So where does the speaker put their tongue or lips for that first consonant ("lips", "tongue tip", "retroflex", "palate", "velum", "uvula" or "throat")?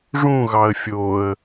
retroflex